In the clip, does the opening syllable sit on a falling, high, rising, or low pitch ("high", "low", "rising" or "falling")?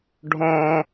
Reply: high